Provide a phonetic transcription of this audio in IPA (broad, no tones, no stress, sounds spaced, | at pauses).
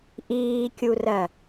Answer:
ʔ iː kʲ u r ɜ